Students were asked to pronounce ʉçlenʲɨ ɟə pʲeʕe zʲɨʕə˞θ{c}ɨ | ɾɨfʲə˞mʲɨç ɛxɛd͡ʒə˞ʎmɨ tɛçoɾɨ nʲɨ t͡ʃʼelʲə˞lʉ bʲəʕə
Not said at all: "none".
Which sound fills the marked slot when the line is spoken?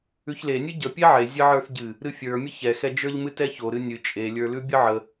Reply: ɟ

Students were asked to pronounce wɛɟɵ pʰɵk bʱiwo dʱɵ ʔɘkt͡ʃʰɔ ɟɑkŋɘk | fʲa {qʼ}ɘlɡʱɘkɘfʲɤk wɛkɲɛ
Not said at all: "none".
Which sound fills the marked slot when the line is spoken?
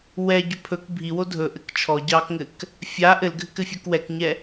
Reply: ʔ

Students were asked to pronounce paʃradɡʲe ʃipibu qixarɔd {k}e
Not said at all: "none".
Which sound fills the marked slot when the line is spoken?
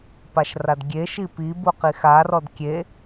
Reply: kʲ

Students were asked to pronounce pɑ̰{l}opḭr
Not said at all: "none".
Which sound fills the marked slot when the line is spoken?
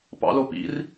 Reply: l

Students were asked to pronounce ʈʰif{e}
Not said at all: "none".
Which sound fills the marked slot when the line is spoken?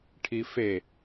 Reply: e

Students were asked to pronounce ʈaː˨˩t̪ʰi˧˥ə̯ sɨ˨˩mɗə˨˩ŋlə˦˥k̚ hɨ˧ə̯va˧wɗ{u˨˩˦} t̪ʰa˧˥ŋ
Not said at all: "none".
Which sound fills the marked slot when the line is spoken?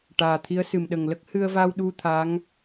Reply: u˧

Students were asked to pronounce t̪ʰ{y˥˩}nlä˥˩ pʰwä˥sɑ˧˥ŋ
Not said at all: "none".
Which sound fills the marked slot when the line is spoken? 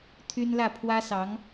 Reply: y˥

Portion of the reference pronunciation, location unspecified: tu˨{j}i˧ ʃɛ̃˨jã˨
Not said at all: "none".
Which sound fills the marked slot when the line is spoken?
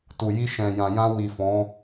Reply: j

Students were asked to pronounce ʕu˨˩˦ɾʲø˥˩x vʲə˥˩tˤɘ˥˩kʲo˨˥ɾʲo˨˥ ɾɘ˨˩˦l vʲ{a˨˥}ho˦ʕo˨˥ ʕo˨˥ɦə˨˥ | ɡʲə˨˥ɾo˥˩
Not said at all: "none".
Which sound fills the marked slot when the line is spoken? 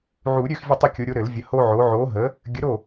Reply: ə˨˥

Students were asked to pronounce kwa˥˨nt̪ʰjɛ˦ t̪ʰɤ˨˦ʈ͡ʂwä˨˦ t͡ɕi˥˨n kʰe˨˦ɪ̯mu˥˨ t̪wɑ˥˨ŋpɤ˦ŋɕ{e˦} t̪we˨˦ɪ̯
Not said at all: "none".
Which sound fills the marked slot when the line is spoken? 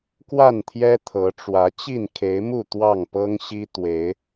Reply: i˦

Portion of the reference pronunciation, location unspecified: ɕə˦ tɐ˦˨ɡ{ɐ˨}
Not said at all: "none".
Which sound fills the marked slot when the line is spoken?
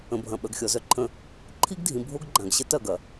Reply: ɐ˨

